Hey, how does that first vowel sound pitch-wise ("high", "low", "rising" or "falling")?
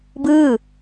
falling